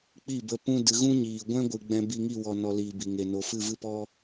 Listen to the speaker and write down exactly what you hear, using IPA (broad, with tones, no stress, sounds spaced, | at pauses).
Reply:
k͡p i˦˨ b ə˧ p ũ˧ d ɨ˨ ɣ ũ˦ ɲ iː˨ ɡʷ ɛ̃˦ ɡʷ ɨ˨ ɡ͡b ɛ̃˧ b i˧ ŋ i˦˨ w ɔ˨ n ɔ˨ l iː˨ b i˨ ŋ e˨ n o˨ f ɨ˦˨ v ɨ˦ p ɔ˦